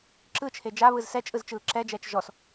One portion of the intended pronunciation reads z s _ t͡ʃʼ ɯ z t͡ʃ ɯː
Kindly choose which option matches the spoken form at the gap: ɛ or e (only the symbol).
ɛ